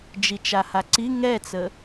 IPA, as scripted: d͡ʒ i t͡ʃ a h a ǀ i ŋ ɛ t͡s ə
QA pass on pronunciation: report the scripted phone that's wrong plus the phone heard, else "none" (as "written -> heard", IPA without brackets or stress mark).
none